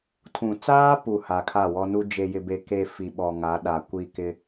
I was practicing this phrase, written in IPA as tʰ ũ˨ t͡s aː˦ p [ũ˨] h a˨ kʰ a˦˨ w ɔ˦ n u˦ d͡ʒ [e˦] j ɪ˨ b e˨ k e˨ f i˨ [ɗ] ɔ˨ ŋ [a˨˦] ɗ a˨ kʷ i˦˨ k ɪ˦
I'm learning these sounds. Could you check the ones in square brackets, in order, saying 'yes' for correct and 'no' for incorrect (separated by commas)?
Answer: no, no, no, yes